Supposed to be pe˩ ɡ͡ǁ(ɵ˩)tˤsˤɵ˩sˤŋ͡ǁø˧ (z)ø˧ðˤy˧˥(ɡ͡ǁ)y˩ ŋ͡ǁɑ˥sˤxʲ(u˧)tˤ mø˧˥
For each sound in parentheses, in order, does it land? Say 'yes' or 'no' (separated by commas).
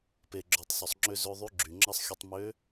no, yes, yes, yes